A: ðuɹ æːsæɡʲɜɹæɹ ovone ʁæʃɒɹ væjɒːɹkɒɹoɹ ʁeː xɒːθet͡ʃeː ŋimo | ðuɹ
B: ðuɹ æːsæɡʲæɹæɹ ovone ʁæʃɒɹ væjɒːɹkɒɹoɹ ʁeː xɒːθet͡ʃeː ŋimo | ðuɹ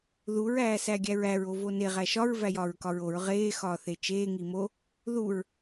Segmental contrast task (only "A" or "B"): B